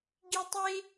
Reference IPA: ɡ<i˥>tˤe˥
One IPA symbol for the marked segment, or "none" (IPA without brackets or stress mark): i˥